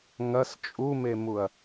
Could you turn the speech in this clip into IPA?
ŋɐs t͡ʃʼumemuɐ̯

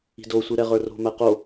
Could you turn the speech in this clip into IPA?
i̤dosʷi ɾɛʁə˞ro̤mæ qo

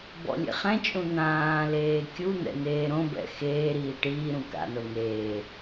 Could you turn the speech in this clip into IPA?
bɔ̰lʲḛχɛ̃t͡ʃʼũ n̪ãːleː kʲun̪ɛ̰ n̪eːɾõbɛ̰ xeːɾiː ʈiːɾũ ka̰no n̪eː

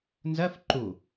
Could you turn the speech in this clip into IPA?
nzɜf ǃu

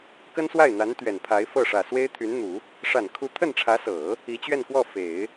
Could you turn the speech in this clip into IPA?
kə˥nswa˥˩ɪ̯n̪a˧˥n t̪ɥɛ˨˩npʰa˧˥ɪ̯fɤ˥˩ ʂä˨˩swe˥ɪ̯t̪ʰy˧˥nn̪u˨˩˦ | ʂa˨˩nkʰu˧˥ t̪ʰə˥˩nʈ͡ʂʰä˧˥sɤ˨˩˦ | i˧˥t͡ɕɥɛ˥˧nkwɔ˥˩ fe˨˩˦ɪ̯

